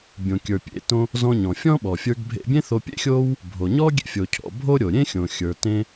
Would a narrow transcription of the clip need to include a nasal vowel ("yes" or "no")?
yes